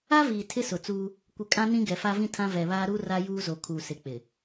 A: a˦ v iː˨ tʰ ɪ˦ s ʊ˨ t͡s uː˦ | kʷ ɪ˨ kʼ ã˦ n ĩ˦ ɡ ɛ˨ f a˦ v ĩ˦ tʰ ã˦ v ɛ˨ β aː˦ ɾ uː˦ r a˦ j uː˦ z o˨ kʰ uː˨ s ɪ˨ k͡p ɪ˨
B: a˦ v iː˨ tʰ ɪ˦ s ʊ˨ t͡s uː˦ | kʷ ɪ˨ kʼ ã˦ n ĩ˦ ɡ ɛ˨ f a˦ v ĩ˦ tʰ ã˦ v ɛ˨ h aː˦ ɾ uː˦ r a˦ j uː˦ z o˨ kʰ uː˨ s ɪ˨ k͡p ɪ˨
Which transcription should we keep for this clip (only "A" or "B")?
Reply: A